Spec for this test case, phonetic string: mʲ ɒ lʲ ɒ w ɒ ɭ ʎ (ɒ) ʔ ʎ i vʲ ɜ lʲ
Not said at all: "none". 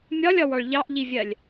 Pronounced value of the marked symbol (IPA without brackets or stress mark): ɑ